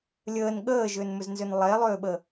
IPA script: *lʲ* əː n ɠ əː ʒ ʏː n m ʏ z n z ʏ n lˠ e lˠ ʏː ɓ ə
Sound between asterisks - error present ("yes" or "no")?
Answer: no